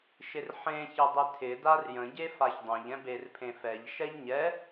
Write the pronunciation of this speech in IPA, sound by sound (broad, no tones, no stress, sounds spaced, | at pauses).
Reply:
ʃ ɪ r ħ ẽ ç ɪ dˤ ɪ tʰ ɪ d a r j ə̃ ɟ e f a ç dˤ ɛ̃ ʎ ɛ̃ b e r pʰ ẽ f ɛ ʎ ʃ ɛ ʎ ɲ ɛ